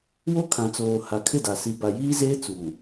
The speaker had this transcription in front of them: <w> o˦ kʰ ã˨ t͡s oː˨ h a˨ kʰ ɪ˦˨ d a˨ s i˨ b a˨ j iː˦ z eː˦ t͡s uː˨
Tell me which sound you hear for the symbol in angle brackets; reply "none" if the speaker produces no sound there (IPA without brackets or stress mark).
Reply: w